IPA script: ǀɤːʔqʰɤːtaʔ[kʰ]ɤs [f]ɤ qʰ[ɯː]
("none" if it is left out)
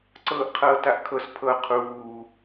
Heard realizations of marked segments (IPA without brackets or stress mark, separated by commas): kʰ, pʰ, uː